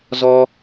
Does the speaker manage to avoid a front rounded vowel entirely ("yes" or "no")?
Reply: yes